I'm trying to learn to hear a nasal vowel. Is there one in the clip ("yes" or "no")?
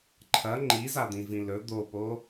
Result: yes